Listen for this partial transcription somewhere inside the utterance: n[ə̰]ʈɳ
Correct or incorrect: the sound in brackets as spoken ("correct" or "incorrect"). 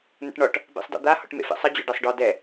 correct